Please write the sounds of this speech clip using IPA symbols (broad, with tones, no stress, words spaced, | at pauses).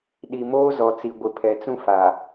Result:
ɗi˨moː˦zɔ˨t͡si˨ ɡʷɪ˨pʰɛ˨t͡sũ˦ fa˨